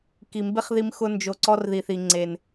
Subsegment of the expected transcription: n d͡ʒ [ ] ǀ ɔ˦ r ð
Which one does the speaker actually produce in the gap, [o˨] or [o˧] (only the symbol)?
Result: o˧